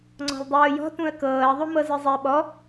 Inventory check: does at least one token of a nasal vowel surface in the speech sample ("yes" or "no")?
yes